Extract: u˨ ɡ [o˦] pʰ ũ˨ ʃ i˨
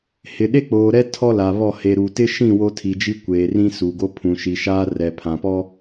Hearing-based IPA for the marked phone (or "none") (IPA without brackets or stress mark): o˦